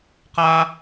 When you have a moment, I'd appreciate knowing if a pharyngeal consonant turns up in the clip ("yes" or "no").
no